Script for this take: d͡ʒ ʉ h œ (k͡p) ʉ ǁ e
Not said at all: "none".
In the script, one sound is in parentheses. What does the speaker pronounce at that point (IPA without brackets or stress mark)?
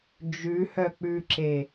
k͡p